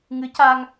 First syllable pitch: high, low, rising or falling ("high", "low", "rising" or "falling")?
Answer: rising